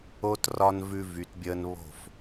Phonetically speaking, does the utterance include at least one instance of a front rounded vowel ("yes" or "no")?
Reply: yes